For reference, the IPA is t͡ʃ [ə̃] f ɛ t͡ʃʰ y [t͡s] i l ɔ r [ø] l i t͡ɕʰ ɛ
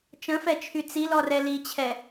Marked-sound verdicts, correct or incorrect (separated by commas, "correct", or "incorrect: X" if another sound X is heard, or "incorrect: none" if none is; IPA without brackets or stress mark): correct, correct, incorrect: ɛ